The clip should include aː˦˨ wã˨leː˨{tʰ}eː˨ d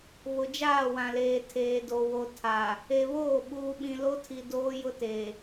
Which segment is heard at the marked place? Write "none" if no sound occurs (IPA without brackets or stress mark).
tʰ